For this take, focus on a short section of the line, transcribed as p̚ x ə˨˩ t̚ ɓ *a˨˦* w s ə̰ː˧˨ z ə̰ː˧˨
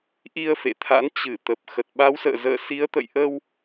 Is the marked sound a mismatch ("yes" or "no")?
no